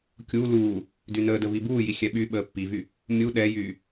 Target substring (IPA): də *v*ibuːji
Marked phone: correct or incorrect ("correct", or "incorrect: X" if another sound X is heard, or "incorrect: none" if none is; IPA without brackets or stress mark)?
correct